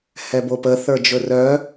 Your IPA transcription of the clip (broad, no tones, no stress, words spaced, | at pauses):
hɛbopə θə˞d͡ʒɵrœ